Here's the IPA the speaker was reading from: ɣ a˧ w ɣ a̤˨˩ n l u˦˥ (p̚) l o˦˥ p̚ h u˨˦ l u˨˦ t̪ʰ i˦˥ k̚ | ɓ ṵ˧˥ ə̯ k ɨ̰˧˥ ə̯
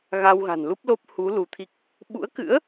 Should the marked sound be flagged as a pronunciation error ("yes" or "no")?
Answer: no